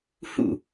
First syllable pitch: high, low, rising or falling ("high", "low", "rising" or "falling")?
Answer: falling